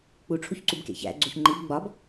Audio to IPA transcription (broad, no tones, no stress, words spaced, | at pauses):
k͡puʈ͡ʂʰuçǀubkḛ çæ̰ ɡ͡ǀuçŋ͡ǃib ɡ͡bɒb